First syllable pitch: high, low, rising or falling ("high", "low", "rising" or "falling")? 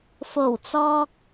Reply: low